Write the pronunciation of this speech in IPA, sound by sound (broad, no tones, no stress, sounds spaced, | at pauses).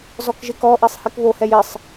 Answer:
z ɔ k ʒ e k ɔ ʔ i sˤ h i k β o h ɛ j ɪ sˤ